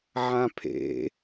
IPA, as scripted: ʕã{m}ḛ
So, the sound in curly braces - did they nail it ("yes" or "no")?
no